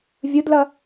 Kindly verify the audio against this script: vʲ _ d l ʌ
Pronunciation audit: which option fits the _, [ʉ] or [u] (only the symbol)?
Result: u